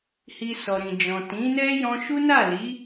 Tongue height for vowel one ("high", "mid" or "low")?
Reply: high